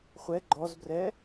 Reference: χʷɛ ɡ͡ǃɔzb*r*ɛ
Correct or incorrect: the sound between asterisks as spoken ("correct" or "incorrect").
correct